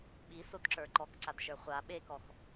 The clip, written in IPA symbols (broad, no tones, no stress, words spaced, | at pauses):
ɓisodǁə˞ ǃɔkǀadʃə˞ χʷa ɓekɔx